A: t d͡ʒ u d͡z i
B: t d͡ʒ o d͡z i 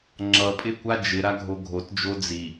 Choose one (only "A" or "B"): B